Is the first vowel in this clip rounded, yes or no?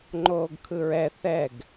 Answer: yes